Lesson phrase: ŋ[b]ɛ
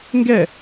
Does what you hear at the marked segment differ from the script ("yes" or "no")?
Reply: yes